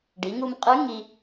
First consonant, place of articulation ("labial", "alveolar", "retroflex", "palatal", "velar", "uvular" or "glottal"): retroflex